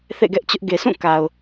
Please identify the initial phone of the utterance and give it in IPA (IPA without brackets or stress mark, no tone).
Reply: θ